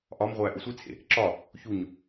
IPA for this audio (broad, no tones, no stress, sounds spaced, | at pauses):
ʔ ɒ m ʁʷ æ ʔ u sʷ i t͡sʰ ḛ | ǁ ɒ | ç u ɲ